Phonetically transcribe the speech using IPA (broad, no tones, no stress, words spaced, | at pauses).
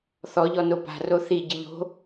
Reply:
θɔʎɔ nopa̤ roθi ɟɨʎo̤